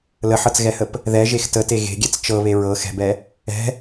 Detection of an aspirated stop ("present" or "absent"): absent